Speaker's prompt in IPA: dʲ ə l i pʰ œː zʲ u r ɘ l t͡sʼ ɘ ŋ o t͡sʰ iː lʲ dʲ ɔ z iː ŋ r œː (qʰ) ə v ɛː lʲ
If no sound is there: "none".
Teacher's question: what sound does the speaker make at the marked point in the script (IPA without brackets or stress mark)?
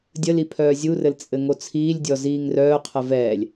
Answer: qʰ